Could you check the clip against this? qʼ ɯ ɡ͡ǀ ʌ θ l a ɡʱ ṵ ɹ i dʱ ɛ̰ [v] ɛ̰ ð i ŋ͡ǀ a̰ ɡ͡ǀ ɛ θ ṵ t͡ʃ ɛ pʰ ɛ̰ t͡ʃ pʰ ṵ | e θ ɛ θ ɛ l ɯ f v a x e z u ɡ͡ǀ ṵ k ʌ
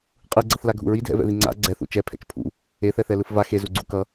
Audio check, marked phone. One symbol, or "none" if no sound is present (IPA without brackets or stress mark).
v